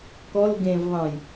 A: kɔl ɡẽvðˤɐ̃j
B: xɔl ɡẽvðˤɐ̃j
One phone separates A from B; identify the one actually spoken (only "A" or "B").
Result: A